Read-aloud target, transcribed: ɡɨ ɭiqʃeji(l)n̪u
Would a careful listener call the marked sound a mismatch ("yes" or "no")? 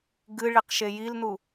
no